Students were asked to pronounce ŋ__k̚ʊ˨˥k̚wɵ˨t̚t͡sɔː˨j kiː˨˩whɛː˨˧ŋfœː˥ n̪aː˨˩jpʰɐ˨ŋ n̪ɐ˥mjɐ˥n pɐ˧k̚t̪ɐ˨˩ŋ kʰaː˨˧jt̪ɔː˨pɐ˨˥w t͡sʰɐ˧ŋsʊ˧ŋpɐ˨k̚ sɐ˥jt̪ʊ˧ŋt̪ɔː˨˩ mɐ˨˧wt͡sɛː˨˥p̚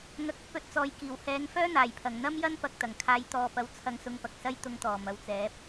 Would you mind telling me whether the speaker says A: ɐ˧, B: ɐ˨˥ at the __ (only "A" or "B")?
B